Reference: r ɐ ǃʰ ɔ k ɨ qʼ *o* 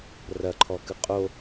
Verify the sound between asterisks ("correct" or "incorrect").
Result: correct